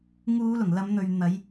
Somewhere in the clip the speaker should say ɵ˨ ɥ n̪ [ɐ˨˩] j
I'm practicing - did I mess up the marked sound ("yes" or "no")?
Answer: yes